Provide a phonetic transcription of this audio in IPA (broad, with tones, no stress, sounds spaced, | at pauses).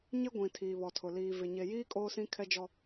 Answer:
ɲ ɪ˦ ɡʷ ĩ˨ tʰ iː˨ β ɔ˨ tʰ ʊ˨ l iː˨ v ɪ˨ ɲ e˨ j iː˦ kʼ oː˦ s ĩ˦ kʰ ɛ˦ d͡ʒ ɔ˦